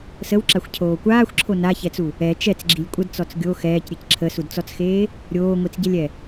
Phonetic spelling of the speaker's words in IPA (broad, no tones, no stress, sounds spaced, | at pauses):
s ə w ǁ a xʷ cʰ oː kʷ aː xʷ ǁʰ o n a ç ɛ t͡s u | ɛ t͡ʃ ɛ t͡s ɡ͡ǁ i lʲ kʷʼ ə d t͡s ɔ t͡s ɡʲ o x ɛː c ɾʲ e c ǁʰ ə s u d t͡s ɔ t͡s x eː | ɾʲ oː ŋʷ i t͡s ɟ ɛ lʲ ɛ